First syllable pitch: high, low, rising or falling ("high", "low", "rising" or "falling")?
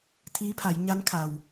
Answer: rising